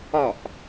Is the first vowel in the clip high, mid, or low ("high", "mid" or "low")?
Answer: low